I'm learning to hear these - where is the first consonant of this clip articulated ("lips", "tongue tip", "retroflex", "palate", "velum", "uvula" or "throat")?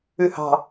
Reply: throat